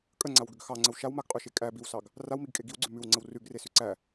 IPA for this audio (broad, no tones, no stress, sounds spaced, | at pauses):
kʼ ə ŋ͡ǀ a w ɡ ʏ ɡ x ɑ ŋ͡ǀ ə w ʃ a w m a ɡ qʼ ʉ ʃ e kʼ æ b i w s ɑ ɡ | r a w m i ɡ kʼ e ɡ i w ɡ͡ǀ ʉ m ʉ w ŋ͡ǀ ə w r ʉ ɡ r e s ʉ ǀ æ